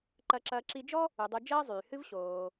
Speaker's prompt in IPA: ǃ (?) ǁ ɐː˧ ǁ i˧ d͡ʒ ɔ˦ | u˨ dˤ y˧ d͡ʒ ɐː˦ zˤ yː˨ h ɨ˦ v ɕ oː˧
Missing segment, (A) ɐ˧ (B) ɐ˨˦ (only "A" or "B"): A